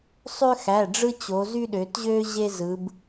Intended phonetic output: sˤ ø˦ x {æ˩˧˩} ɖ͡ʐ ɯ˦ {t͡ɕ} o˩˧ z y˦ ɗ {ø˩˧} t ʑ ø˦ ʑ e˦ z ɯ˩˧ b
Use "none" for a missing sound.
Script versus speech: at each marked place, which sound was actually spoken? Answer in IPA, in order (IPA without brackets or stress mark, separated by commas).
æ˩˧˩, t͡ɕ, ø˩˧